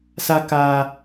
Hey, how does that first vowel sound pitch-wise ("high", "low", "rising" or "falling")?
high